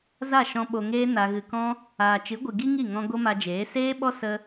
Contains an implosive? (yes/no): yes